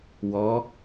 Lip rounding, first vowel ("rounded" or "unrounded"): rounded